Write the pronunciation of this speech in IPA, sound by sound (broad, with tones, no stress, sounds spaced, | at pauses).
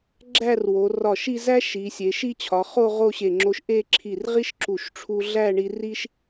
ɡ͡ǁ æ˥˧ r w o˩˧ r ɒ˧˩ ʃ i˥˧ z æ˥ ʃ i˩˧ sʲ e˩˧ ʃ i˥˧ t͡ɕʰ ɒ˩˧ χ o˥˧ ʁ o˥˧ ɕ e˧˩ ŋ͡ǁ o˧ ʃ ʔ e˥˧ ǁʰ i˧˩ r ʁ i˥ ʃ ǁ u˧˩ ʃ ʈ͡ʂʰ u˧ ɮ æ˥˧ ɳ i˧ r i˥ ʃ